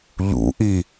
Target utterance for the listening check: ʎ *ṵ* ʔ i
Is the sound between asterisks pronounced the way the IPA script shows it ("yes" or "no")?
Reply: yes